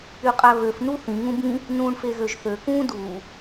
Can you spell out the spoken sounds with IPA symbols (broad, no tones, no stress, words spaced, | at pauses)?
yqʼæβøf nuθĩ ŋũbĩ | nũːɳfeɣøʒθø kũːduː